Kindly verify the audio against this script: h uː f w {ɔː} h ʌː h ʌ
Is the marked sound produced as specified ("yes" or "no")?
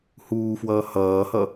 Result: no